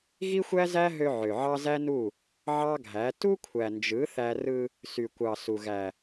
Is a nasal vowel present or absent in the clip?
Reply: absent